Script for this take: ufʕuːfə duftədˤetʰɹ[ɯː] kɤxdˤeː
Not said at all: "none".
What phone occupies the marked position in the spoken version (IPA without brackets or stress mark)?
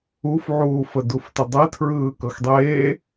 ɯː